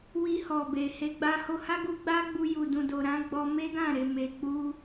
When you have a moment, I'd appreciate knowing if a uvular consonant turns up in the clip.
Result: no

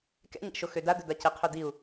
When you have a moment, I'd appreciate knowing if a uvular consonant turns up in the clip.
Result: yes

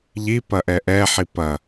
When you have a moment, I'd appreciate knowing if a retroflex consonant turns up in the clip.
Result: no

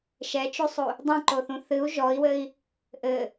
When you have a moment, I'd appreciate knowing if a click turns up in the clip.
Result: yes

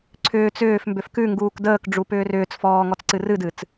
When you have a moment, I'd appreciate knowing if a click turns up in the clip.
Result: yes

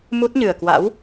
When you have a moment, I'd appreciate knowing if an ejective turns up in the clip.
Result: no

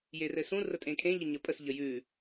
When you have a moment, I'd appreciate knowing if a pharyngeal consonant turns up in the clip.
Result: no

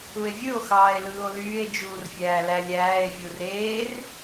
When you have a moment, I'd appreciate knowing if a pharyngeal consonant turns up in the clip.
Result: no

